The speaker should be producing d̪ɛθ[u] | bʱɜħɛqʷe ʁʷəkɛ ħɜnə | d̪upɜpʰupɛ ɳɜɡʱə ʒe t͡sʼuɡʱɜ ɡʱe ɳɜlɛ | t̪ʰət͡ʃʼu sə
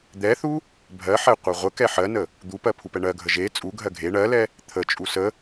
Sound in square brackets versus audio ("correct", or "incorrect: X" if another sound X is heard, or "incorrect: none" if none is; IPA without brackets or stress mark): correct